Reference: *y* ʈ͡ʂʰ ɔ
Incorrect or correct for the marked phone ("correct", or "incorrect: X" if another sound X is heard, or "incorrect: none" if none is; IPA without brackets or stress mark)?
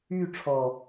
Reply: correct